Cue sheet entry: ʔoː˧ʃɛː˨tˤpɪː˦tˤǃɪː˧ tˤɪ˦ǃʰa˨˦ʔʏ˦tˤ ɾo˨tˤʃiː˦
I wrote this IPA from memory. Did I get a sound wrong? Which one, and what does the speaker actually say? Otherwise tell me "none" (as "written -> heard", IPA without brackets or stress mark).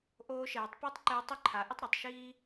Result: ʏ˦ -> ɪ˦